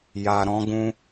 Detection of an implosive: absent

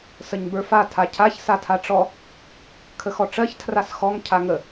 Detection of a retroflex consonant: present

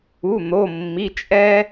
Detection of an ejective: present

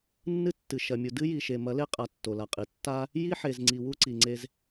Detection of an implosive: absent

